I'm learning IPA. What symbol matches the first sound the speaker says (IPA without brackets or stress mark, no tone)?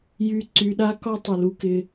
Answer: j